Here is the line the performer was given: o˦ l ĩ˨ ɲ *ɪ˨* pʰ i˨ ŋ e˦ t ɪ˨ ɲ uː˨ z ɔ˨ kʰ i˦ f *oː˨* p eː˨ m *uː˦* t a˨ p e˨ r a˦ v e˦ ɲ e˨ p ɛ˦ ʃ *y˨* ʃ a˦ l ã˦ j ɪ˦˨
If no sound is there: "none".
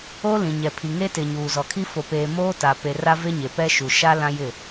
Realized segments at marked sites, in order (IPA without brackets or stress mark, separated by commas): ɛ˨, o˨, oː˦, u˨